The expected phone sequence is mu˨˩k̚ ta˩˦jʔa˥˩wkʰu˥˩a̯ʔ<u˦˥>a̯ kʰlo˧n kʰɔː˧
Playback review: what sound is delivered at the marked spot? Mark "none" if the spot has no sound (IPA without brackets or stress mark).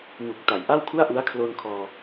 u˦˥